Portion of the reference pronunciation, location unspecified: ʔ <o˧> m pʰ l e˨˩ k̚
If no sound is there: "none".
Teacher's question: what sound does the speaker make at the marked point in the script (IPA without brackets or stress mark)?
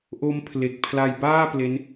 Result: o˦˥